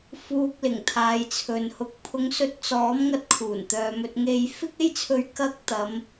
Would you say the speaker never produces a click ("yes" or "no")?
yes